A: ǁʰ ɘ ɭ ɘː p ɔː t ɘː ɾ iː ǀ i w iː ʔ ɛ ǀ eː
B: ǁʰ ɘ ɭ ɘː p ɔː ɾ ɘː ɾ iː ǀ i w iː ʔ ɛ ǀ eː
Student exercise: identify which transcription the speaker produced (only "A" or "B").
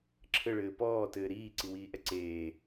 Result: A